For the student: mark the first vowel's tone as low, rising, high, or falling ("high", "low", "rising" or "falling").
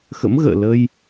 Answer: rising